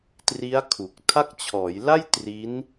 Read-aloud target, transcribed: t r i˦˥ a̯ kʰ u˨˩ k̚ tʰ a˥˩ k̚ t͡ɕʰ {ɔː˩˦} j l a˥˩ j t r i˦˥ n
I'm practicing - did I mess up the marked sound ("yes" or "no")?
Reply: no